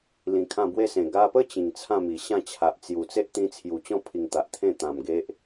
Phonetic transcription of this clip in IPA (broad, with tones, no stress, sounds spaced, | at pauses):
l ĩ˧ kʰ ã˥˧ b w e˦ s ẽ˨˩ ɡ a˧ p ə˦ t͡ɕ ĩ˨˩ ŋ t͡sʰ ã˥˧ m i˨˩ ɕ ã˥˧ t͡ɕʰ a˨ ʔ t͡s j u˨˩ t͡s e˦ ʔ t̪ ĩ˧ t͡sʰ j u˨˩ t͡ɕ ɔ̃˦ pʰ i˨˩ ŋ t̪ a˨ ʔ t̪ʰ ẽ˥˧ t̪ ã˨˩ m ɡ e˦ ʔ